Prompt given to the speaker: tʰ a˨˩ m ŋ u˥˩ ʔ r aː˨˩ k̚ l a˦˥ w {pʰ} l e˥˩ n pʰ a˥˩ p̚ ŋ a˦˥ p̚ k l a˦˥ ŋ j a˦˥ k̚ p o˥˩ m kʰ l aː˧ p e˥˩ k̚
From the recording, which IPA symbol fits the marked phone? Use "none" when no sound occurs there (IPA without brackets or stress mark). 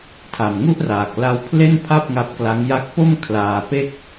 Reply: pʰ